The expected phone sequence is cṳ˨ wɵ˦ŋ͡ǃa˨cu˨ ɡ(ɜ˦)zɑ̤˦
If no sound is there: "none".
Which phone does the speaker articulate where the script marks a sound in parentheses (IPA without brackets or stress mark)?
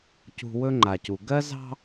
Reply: ɜ˦